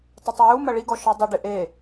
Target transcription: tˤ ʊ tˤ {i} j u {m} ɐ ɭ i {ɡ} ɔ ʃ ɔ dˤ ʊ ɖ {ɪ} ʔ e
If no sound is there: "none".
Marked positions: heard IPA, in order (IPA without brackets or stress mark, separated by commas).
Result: i, m, ɡ, ɪ